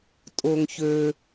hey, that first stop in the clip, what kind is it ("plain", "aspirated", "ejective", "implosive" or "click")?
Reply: ejective